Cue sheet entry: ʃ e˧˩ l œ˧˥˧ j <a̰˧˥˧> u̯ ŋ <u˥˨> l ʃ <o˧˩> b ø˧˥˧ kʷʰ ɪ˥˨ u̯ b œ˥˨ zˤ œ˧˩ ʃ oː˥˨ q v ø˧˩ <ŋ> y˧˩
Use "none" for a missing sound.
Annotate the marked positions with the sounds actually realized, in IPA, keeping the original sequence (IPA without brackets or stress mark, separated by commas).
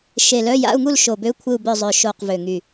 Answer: a̰˧˥˧, u˥˨, o˧˩, ŋ